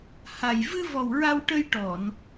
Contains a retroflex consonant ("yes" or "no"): yes